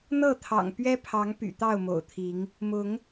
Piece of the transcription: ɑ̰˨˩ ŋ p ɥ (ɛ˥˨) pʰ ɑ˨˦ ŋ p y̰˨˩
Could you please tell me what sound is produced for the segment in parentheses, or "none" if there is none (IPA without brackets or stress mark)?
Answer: ɛ˦